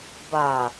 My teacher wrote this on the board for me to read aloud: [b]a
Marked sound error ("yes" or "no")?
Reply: no